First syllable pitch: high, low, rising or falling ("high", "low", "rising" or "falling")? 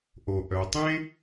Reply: low